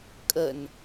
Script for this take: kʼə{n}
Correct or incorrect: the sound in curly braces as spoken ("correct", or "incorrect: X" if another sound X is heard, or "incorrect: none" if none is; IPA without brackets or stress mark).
correct